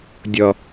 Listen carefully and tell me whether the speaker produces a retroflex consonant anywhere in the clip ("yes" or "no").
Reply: no